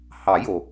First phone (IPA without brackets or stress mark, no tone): h